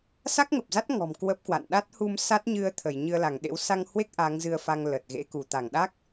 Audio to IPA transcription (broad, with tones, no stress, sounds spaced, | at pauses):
s a˦˥ k̚ ŋ ə˨˩ p̚ z a˦˥ t̚ ŋ ɔ̤˨˩ m k w ə˦˥ p̚ k w a̰˧˨ n ɗ a˦˥ t̚ h u˧ m s a˦˥ t̚ ɲ ɨ˧ ə̯ t̪ʰ ə˧˩ j ɲ ɨ˧ ə̯ l a˧˩ ŋ ɗ ḛ˧˥ w s a˧ ŋ h w e˦˥ k̚ ʔ a˨˦ ŋ z ɨ˧ ə̯ f a˧ ŋ l ə˨˩ t̚ ɣ ḛ˧˥ k u˧˩ t̪ a˧˩ ŋ ɗ a˦˥ k̚